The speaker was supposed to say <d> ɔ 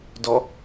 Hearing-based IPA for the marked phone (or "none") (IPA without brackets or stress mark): d